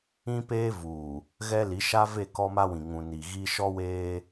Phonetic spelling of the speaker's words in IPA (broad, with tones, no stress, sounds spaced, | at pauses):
ĩ˦ p eː˦ v uː˨ | ɣ ɛ˦ l i˨˦ ʃ a˦ v e˦˨ k ɔ˦ m a˦ w ĩ˨ ŋ ũ˨ n i˨ ɣ i˦ ʃ ɔ˦ w eː˦